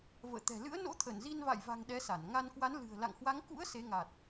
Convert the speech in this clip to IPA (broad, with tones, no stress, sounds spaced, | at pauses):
v ə̰ː˧˨ t̪ ɛ̤˨˩ l ɨ̰˧˥ ə̯ n o̰˧˥ t̪ʰ ə˧˩ n z i˧ n v a̰˧˨ j v a̤˨˩ ŋ ɗ ɛ˨˦ s a˧˩ n ŋ a˧ n k w a˨˦ n l ɨ̤˨˩ ə̯ l a̰˧˨ ŋ h w a˨˦ ŋ k ṵ˧˥ ə̯ s e˨˦ ŋ a˨˩ t̚